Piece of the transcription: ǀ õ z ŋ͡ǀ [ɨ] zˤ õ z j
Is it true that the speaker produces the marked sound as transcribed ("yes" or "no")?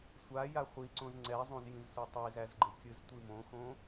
no